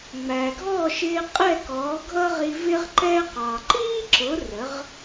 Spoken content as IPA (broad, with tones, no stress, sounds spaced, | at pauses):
ŋ͡m æ˩ ɡʱ ɔː˥˩ ʃ ɪː˧ qʼ ɛ˥˩ k ɔː˩˥ ɡʱ ʌ˥ ʁ i˧ v ɪ˥ ʁ ǃ ɛ˥ q ɑ˩ ǃ iː˥ ǁ ʊ˩˥ r ə˩˥ ʁ